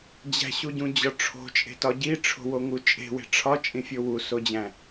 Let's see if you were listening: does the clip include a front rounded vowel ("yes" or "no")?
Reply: no